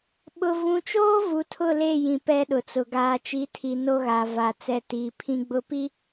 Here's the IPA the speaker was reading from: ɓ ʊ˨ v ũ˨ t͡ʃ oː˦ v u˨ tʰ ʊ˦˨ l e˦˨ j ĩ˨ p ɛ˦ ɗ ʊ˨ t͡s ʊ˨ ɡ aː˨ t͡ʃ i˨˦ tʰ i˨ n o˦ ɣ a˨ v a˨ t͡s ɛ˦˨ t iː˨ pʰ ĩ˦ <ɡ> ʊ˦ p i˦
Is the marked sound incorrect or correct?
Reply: incorrect